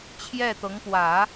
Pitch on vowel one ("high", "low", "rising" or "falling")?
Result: falling